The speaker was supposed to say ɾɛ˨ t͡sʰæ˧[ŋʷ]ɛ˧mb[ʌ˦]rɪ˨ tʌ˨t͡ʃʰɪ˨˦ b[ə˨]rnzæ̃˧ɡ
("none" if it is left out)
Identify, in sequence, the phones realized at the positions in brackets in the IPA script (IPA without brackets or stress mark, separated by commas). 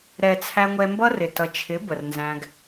ŋʷ, ʌ˦, ə˨